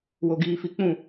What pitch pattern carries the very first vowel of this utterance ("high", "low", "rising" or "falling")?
low